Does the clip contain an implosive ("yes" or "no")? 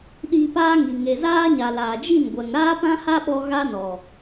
yes